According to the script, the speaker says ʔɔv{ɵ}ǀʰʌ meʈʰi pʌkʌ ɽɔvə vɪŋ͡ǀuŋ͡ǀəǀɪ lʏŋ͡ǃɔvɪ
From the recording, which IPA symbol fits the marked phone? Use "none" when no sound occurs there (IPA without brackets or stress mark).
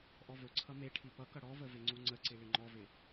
ɵ